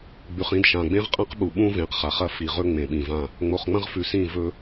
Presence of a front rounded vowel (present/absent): absent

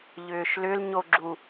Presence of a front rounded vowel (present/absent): present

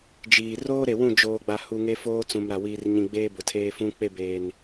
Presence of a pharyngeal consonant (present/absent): absent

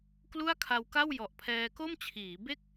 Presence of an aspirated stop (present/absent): present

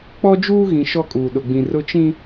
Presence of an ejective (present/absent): present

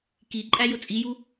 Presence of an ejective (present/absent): present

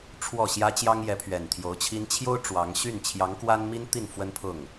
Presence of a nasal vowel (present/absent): absent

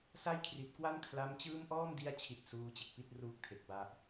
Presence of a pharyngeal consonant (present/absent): absent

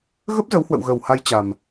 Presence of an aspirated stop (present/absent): absent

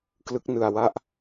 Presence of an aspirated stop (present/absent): absent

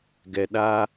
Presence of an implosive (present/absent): present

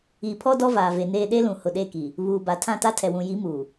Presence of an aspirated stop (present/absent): present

